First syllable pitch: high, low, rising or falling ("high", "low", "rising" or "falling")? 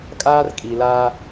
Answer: high